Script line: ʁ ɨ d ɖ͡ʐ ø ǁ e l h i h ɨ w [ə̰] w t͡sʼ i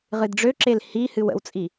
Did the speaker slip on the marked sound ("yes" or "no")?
no